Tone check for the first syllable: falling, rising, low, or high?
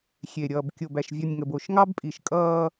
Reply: low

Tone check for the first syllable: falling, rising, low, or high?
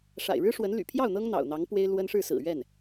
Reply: low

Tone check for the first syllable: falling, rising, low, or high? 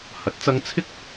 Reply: rising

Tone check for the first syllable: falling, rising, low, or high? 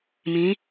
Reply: rising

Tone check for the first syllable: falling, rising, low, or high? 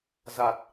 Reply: low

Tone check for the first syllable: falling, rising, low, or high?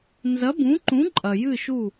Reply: rising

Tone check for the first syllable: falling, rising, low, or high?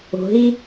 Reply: low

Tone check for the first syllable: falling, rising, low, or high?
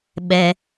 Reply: low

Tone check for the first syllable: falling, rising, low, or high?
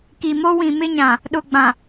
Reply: low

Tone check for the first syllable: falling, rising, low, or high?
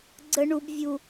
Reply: high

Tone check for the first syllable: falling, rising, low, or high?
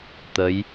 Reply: rising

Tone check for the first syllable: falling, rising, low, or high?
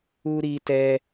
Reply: high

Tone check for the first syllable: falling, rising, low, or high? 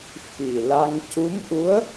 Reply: low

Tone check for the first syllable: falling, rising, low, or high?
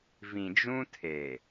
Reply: low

